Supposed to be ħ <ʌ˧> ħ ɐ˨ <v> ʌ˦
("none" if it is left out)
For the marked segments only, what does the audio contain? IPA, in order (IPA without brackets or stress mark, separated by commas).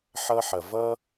ʌ˧, v